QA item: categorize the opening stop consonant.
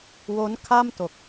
aspirated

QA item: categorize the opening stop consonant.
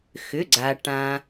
click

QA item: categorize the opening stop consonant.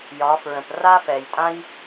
plain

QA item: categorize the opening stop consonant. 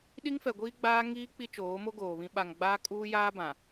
implosive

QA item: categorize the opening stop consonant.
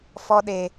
implosive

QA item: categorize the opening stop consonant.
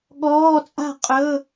implosive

